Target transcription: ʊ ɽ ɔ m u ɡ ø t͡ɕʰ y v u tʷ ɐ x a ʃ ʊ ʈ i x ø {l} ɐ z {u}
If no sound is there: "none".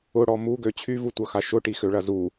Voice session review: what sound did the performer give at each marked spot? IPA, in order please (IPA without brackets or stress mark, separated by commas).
ɭ, u